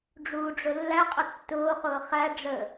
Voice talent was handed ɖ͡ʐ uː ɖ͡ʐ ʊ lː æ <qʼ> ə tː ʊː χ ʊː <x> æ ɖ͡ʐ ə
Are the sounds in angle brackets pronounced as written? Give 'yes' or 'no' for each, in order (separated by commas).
yes, no